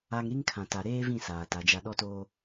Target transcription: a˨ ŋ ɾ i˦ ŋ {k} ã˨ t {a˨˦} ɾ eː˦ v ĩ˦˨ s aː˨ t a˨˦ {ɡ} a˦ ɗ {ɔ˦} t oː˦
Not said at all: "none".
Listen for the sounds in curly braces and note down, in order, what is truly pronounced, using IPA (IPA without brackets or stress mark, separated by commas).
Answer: kʰ, a˨, d͡ʒ, ɔ˦